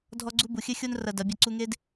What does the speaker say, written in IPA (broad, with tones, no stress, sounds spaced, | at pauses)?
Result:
dʱ ɔ˦ ɡ͡ǀ u˦ b u˨ xʲ ɘ˦ xʲ o˦ n r ɐ˧ d ɐ˨˦ bʲ ɐ˦˨ ǀ u˧ ŋ e˦ d